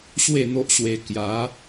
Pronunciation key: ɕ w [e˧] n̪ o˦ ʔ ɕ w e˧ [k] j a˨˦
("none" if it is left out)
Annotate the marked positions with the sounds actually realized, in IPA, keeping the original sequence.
e˥˧, k

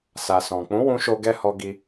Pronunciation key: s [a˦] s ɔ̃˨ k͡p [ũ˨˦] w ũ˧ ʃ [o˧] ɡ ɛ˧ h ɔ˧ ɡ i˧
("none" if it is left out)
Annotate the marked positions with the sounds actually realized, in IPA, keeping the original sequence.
a˨, ũ˨˦, o˧

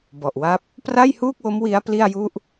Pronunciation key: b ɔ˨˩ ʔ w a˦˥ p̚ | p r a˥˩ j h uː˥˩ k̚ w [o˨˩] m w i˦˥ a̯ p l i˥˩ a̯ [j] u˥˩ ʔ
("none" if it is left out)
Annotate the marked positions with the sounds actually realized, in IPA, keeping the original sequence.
o˦˥, j

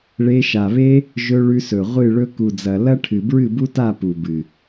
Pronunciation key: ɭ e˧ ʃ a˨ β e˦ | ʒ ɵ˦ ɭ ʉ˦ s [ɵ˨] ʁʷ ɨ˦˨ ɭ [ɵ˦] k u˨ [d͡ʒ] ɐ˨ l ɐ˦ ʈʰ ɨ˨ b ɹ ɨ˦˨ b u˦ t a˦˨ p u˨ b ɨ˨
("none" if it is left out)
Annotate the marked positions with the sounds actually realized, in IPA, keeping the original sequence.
ɵ˨, ɵ˦, d͡z

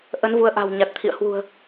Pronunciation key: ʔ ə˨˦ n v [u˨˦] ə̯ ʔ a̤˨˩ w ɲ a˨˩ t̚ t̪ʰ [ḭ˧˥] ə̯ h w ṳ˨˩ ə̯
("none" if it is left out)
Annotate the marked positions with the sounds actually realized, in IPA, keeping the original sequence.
u˨˦, ḭ˧˨

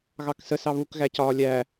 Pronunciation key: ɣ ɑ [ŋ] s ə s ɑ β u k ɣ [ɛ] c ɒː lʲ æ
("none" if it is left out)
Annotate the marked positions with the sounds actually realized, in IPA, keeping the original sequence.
k, æ

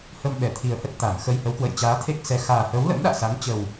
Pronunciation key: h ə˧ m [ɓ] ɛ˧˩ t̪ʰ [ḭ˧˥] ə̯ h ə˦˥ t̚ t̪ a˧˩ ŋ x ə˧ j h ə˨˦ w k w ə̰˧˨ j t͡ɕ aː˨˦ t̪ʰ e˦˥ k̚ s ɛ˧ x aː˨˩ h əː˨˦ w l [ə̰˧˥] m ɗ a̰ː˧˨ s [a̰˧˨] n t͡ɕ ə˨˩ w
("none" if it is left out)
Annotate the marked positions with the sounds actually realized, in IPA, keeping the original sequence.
ɓ, i˨˩, ə̰˧˥, a˨˦

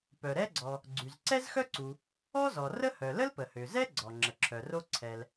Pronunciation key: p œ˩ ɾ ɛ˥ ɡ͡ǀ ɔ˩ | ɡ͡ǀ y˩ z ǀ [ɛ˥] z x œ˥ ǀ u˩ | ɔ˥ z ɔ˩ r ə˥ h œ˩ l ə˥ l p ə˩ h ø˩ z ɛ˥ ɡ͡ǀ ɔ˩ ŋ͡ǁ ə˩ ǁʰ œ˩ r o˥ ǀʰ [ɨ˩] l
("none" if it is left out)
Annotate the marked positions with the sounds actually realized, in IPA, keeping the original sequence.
ɛ˥, ɛ˩

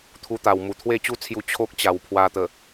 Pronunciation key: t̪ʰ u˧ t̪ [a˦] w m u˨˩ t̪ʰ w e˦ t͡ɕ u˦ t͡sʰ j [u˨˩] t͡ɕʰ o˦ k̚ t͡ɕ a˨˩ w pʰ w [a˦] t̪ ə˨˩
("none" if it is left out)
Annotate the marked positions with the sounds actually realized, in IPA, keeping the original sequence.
a˨˩, u˧, a˧

